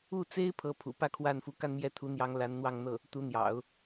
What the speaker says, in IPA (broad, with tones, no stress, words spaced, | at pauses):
u˥˩t͡se˥ɪ̯ pʰɤ˥pʰṵ˨˩ pä˥kʰwa˥˩nfu˧˥ ka˥˧nmjɛ˥˩t̪ʰu˧˥n̪jɑ˧˥ŋ la˧˥nn̪wɑ˥˧ŋ n̪ɤ˥˩ | t̪u˧˥n̪jɑ̰˨˩˦ʊ̯